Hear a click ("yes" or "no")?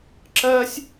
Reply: yes